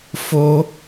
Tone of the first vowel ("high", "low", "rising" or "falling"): high